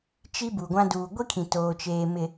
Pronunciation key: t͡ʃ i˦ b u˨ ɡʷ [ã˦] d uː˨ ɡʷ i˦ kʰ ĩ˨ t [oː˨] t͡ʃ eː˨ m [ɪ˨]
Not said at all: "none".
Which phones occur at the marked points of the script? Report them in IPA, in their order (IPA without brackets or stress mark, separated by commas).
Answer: ã˦, oː˨, ɪ˨